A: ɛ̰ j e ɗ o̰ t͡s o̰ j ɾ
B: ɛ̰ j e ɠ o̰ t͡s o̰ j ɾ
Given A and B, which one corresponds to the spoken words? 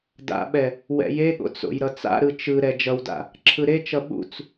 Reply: B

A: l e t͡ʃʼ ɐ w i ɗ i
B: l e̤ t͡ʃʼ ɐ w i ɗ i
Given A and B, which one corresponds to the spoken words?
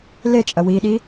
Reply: A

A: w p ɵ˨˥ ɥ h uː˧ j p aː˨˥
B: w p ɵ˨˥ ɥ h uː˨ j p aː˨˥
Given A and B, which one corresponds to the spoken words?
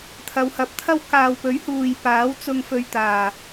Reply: B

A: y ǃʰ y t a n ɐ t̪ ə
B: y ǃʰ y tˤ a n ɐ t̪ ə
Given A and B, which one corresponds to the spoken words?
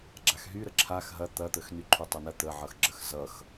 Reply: B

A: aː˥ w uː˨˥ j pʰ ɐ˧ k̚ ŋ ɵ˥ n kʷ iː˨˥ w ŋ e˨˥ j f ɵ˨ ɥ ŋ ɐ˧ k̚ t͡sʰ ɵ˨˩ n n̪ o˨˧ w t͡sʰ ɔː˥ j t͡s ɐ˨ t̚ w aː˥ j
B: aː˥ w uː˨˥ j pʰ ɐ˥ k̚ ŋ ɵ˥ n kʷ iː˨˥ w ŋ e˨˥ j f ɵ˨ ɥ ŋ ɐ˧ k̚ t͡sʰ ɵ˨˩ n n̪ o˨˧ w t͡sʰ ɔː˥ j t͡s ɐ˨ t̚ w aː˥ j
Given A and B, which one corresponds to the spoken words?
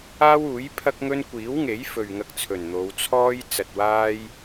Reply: B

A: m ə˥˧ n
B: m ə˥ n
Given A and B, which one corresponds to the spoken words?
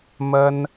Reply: B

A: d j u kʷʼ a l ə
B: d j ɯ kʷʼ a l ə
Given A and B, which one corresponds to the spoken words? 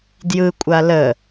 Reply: B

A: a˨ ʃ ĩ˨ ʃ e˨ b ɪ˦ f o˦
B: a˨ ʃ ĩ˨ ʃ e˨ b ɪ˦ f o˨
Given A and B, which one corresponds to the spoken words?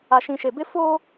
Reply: A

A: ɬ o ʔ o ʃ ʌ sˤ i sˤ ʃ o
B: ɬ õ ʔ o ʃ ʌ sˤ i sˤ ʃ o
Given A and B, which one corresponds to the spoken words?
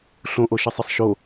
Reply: B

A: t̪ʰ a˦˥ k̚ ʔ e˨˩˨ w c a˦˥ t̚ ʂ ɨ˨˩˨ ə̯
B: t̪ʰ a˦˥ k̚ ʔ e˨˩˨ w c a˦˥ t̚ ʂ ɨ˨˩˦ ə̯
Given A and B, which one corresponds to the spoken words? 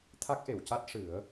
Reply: B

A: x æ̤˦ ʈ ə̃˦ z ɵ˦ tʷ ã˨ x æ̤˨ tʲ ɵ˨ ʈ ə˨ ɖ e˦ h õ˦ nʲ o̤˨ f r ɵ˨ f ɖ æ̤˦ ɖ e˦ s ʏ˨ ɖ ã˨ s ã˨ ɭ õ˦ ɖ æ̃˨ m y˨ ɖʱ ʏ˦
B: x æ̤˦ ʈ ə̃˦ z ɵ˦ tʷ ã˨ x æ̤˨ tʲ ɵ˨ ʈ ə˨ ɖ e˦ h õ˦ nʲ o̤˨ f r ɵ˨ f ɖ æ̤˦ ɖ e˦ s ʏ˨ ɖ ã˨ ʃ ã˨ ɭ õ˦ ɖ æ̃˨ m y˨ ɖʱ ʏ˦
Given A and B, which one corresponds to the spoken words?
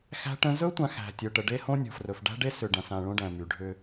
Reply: A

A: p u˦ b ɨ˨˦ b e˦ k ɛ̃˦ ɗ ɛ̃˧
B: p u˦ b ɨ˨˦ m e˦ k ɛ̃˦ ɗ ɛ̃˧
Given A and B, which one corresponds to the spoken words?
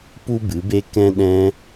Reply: A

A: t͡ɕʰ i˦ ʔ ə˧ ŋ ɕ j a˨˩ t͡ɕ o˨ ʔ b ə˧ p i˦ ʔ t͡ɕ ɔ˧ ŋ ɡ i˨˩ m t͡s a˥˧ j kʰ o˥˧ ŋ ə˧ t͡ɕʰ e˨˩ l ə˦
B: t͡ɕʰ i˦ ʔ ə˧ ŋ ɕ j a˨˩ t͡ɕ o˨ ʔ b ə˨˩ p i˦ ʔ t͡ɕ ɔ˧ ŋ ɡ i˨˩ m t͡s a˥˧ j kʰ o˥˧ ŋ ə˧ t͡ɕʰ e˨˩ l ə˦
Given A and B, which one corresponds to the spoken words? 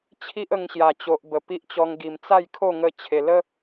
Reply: B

